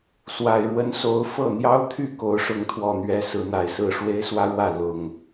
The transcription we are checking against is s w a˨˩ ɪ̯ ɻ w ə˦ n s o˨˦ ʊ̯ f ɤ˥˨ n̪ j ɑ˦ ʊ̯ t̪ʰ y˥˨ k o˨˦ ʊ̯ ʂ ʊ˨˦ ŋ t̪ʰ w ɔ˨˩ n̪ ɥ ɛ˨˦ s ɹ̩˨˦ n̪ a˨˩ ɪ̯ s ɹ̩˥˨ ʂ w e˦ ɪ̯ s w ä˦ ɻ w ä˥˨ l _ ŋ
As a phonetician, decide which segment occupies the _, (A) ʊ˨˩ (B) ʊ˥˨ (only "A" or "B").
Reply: A